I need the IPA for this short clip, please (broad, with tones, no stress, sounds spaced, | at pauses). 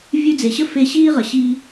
vʲ ʉ˦ d͡z e˨ ɕ ə˥ f e˦ ɕ iː˥ ʁ ə˨ ɕ i˦